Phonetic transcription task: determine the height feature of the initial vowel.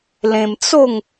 mid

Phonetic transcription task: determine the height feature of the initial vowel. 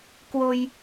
mid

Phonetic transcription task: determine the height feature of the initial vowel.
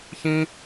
high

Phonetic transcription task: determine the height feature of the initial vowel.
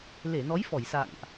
mid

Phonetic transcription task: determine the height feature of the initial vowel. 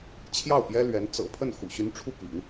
low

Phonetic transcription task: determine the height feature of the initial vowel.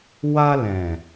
low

